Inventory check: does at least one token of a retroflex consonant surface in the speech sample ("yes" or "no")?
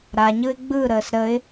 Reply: no